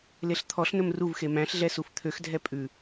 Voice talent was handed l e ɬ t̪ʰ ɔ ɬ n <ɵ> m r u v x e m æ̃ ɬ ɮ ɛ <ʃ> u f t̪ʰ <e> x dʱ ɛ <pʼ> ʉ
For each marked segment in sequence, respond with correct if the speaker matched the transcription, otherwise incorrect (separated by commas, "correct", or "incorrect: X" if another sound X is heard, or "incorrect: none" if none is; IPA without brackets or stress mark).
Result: correct, incorrect: s, incorrect: ø, correct